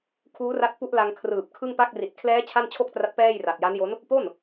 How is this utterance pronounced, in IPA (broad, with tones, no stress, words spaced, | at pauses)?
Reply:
kʰuː˦˥ra˦˥t̚ pu˦˥ʔla˧ŋ kʰrɯː˨˩p̚kʰɯ˥˩ŋpa˥˩k̚ ri˨˩t̚kʰlɛː˦˥ t͡ɕʰa˥˩nt͡ɕʰo˥˩k̚tra˦˥t̚ pɛː˥˩j ra˨˩t̚ja˦˥njo˦˥n | po˥˩n